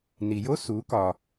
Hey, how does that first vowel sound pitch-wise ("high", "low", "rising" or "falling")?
low